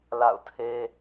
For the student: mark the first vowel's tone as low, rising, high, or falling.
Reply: falling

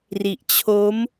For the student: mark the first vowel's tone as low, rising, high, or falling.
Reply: low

